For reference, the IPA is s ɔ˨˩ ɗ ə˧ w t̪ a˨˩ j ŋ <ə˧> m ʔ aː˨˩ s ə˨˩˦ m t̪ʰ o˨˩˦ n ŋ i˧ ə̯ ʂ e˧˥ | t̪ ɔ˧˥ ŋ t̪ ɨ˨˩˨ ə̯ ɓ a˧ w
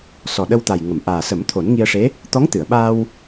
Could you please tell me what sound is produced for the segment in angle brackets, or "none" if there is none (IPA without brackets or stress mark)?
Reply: ə˨˩˨